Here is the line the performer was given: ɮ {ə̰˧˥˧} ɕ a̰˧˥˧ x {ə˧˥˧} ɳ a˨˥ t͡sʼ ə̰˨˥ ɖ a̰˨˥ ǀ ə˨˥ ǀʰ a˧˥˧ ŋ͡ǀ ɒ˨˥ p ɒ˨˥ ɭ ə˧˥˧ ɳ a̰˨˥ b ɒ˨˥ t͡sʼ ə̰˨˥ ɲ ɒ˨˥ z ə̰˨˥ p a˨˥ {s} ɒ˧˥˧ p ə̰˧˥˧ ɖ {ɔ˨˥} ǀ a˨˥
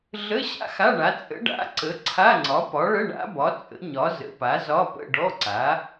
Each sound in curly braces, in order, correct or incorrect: incorrect: ə˧˥˧, incorrect: a˧˥˧, incorrect: z, incorrect: ɔ˧˥˧

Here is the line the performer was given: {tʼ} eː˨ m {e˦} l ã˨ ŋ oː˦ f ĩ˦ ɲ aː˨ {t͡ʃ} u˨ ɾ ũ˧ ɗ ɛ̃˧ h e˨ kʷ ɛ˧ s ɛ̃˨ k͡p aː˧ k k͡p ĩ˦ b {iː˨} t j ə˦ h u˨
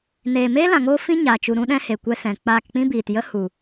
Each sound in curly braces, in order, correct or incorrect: incorrect: n, incorrect: eː˦, correct, correct

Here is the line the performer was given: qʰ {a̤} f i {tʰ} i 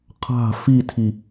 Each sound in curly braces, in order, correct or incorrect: correct, correct

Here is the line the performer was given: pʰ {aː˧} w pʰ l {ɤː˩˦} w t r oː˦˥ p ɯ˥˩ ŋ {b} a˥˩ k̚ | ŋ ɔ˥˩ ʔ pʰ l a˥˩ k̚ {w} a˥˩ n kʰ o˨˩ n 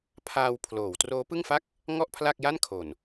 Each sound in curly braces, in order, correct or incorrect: correct, incorrect: oː˩˦, incorrect: f, incorrect: j

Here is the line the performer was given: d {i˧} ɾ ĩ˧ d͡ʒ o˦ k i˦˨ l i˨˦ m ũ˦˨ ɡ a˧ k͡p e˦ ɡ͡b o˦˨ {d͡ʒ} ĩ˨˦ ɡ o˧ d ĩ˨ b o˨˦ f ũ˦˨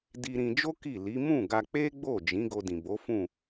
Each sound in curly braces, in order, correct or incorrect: correct, correct

